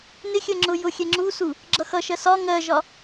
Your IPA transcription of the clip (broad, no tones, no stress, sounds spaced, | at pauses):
n ɪ xʲ ɜ ŋ͡ǁ ʊ j ʊ xʲ ɛ ŋ͡ǁ u s u | ɡ͡ǁ ʌ x ʌ ʃ ɜ s ɒ ŋ ɜ ʒ ɒ